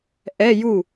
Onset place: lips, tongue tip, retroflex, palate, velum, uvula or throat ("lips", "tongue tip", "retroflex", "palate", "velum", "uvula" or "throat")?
throat